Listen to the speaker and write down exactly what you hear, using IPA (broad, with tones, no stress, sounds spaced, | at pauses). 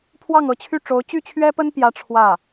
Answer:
pʰ w ɑ˥˩ ŋ ɤ˧˥ t͡ɕʰ y˥˩ ʈ͡ʂ o˧˥ ʊ̯ t͡ɕ y˥˩ t͡ɕʰ ɥ ɛ˥ p ə˥ n p j ä˥ ʈ͡ʂʰ w ä˥˩